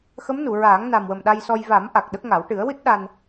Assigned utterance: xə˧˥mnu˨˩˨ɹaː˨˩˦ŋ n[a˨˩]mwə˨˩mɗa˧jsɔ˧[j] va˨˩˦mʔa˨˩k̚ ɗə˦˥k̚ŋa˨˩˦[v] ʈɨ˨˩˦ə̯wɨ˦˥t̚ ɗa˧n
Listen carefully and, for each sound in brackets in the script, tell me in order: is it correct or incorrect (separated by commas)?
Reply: correct, correct, incorrect